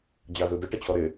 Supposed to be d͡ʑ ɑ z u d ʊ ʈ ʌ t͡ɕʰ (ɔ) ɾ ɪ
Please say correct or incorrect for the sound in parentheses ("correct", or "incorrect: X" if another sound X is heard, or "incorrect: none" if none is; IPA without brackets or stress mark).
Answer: correct